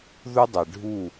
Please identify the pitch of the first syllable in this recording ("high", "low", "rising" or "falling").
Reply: high